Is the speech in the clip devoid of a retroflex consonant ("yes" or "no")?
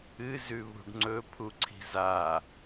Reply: no